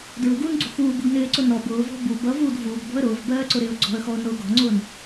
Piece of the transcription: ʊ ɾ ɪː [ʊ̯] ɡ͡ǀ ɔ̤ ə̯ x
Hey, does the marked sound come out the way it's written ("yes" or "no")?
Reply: yes